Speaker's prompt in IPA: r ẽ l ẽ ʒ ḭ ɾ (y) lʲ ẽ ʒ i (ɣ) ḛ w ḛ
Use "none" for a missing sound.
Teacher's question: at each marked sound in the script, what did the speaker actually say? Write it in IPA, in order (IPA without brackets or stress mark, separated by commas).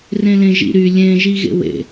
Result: y, ɣ